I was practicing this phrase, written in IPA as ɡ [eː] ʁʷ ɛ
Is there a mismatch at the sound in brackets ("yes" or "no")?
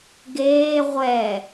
no